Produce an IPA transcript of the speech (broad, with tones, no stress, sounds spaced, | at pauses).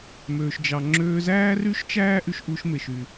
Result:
m øː˩ ʃ d͡ʒ ɑ˩ ŋ͡ǁ øː˧ z æː˥ r y˥ ʃ t͡ʃ æː˥ ʔ y˧ ʃ ʔ u˧ ʃ m e˩ ʃ y˩